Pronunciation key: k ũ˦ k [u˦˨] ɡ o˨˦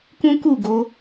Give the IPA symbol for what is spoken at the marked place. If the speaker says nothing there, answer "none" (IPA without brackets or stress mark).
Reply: u˦˨